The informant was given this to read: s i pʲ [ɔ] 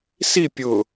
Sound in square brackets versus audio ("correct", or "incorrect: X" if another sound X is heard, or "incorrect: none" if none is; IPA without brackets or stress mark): incorrect: ʊ